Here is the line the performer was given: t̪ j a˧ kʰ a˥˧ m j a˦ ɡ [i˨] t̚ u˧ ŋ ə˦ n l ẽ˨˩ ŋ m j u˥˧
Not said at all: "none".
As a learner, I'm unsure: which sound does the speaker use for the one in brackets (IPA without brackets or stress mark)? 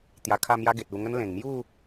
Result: e˨